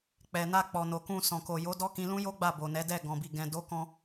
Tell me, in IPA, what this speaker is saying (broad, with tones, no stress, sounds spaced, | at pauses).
k͡p ɛ˨ n a˧ k͡p ɔ˨ n o˨ k ũ˧ s ɔ̃˨ k o˨ j o˨˦ d ɔ˦ k ĩ˧ l ũ˦ j o˦ ɡ͡b a˦˨ b o˨ n ɛ˨˦ d ɛ˦˨ ɡ ɔ̃˨ b i˨ ɡ ɛ̃˨ d o˨˦ k ɔ̃˧